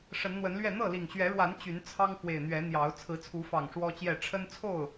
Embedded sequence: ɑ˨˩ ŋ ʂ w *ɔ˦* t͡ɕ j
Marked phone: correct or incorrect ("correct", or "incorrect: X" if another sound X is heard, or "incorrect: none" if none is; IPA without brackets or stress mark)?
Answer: correct